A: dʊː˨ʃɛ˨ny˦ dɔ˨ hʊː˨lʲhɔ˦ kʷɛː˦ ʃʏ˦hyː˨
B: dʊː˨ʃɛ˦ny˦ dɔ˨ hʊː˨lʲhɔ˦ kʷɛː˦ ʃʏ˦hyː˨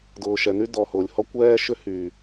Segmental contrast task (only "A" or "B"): A